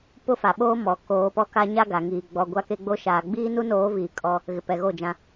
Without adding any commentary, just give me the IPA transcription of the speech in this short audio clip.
p ʊ˦ f a˨ ɓ oː˦ m ɔ˨ k oː˨˦ p ɔ˦ k a˦ ɲ a˦ ɡ a˨ ŋ iː˨ ɡ͡b ɔ˨ ɡʷ a˦ k e˦ ɡ͡b o˦ ʃ aː˨ ɡ͡b iː˦ n u˦ n oː˨˦ v iː˨ kʼ ɔ˦ | ɣ ɪ˨ p ɛ˨ ɣ o˦˨ d͡ʒ ã˦

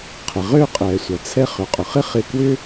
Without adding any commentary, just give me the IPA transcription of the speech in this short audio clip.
qʰ ɪ˩ ʁ ø˧ qʼ ɛ˩ sʷ ɐ˩ t͡sʰ ɛ˧ χ ʏ˩ qʼ ʊ˩ χ ɪ˥ χ ɪ˧ k w ʏ˥

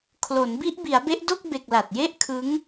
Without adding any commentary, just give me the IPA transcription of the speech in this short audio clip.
kʰ l o˩˦ n b i˦˥ ʔ b i˩˦ a̯ b e˦˥ ʔ d o˥˩ k̚ b e˨˩ k̚ l a˨˩ t̚ j e˥˩ ʔ kʰ ɯ˦˥ ŋ

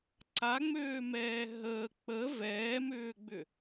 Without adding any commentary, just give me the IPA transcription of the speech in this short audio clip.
ǀ a ŋ͡m øː m ɛː ɦ əː k͡p ə v ɛː m ʏː ɡ͡b ʏ

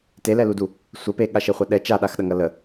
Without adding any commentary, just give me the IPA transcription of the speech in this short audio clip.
t e l ɛ l u d u | sʷ ə p e ɠ a ʃ e χʷ a ɗ ɛ t͡ʃ a ɗ a x ɗ ɐ ŋ ɐ l ə

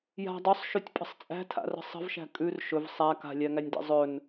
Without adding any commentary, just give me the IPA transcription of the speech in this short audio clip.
j a̤ dˤ ɵ sˤ ʃ ʉ tʲ pʼ ə̤ sˤ t͡sʼ æ̤ tʰ a̰ r ə̤ sˤ ə̤ v ʃ æ̤ kʼ ʉ r ʃ ɵ v sˤ æ k a̤ lʲ æ ŋ æ nʲ d ḛ zˤ ɵ n

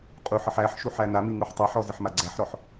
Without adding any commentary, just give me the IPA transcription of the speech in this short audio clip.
qʼ u ħ ə ħ æ ħ ʃ u ħ æ n a m i ŋ u ħ tˤ a ħ ɔ z ə ħ m a ɡ͡ǀ æ ħ ɾ ɔ ħ

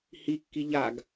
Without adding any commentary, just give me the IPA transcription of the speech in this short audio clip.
h i kː i ʎ a ɡ

